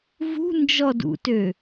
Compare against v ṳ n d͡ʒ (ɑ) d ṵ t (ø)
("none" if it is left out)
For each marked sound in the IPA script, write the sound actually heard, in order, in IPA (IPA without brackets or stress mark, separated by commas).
ɔ, ø